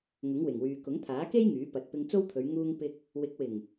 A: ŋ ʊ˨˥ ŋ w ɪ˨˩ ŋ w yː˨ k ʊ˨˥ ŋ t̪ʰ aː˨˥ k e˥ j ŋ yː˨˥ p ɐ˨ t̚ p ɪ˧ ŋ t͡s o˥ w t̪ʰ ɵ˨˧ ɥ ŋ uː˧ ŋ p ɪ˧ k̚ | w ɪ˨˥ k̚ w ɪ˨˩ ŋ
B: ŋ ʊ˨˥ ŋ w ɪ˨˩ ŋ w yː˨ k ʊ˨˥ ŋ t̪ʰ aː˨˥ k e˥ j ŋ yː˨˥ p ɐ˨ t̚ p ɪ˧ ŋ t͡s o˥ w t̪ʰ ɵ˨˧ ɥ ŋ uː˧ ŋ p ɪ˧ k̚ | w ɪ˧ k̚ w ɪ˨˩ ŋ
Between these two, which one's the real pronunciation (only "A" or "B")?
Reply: A